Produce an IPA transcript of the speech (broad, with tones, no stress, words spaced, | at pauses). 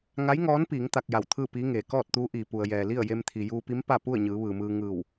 ŋa˧˥jŋɔː˧˥npiː˩˧ŋ t̪a˧k̚ja˧˩wt̪ʰɯː˥˨piː˧˥ ŋeː˩kɔː˥˨t̚t̪uː˧˥ʔiː˩ pu˩ə̯jɛː˩li˥˨ə̯ je˧mt̪ʰi˩juː˧pi˧˥m pa˥˨pu˥˨ə̯ɲɯː˩˧ ʋɯː˩mɯː˧ ŋɯː˧˩w